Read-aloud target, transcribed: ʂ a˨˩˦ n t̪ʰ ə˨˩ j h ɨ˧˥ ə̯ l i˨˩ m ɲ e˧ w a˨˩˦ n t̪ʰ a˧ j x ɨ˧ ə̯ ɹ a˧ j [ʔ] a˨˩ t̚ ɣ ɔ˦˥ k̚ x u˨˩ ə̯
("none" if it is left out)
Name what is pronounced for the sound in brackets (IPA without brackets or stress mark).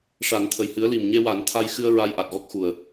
ʔ